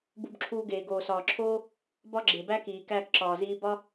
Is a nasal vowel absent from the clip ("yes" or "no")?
yes